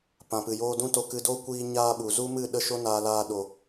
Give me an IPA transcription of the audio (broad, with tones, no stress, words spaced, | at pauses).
pã˨pɨ˨joː˦ dũ˦to˧kɨ˧ do˦kʷiː˧ ɲaː˦ɓu˨ zu˦mɨ˦˨ ɗə˦ʃo˦naː˧ laː˧ɗo˨